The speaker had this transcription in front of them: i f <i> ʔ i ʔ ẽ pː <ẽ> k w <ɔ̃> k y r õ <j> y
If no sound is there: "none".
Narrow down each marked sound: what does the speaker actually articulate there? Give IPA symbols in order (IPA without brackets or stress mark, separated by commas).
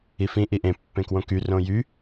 ĩ, ẽ, õ, j